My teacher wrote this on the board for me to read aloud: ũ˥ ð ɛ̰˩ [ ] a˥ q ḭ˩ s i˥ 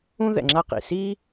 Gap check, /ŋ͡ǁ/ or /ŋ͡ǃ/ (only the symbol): ŋ͡ǁ